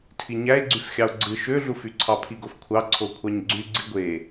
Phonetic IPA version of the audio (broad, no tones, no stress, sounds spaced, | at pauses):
tʰ i ɲ æ e̯ ɡ͡ǀ y f xʲ ɑ o̯ ɡ͡ǀ ɯ ʃ ø ɮ u f y ǀʰ ɑ pʰ i ɡ o f kʷʰ ɑ ǀʰ o kʷʰ ɑ ɲ ɡ͡ǀ y ɡ͡ǀ i ɡʷ e